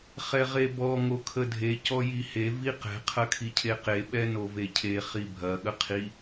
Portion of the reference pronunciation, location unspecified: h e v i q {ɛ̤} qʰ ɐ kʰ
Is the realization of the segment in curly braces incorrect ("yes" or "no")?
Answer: no